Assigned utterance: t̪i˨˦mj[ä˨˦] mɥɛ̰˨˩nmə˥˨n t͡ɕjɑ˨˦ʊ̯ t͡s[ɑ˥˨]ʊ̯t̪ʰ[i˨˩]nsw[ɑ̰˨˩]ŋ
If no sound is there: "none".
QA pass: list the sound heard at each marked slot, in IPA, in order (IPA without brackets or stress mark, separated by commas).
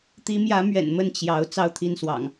ä˨˦, ɑ˥˨, i˥˨, ɑ̰˨˩